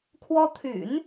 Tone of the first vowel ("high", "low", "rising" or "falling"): high